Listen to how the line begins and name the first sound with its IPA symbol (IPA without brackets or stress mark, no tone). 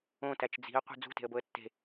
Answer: õ